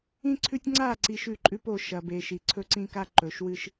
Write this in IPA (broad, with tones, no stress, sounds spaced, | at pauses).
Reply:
ĩ˦ ǀʰ ʉ˦ tʲ ŋ͡ǀ a˦˨ ǀ i˨ ʃ ʉ˦˨ ǃʼ ʉ˦ p o˨ ʃ ɐ˨ b e˨ ʃ i˨ ǀʰ ɵ˦ ǀ ĩ˦ k a˦ ǃ ɵ˨ ʃ w ɨ˦ ʃ